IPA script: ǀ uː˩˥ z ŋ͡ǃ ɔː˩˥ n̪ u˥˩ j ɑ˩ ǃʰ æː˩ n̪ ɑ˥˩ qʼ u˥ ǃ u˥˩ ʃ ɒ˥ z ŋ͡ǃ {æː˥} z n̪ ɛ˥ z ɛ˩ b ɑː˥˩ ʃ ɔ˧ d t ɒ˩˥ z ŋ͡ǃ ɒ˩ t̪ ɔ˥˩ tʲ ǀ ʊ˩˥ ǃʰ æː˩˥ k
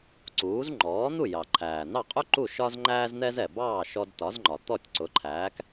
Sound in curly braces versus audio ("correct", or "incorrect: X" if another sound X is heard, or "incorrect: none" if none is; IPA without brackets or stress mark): correct